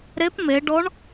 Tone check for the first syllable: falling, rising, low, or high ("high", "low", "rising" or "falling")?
rising